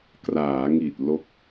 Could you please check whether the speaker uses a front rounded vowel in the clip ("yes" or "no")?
no